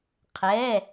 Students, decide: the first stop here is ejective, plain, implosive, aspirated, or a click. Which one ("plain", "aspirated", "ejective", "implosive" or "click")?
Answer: aspirated